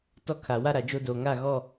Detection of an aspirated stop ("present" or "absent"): present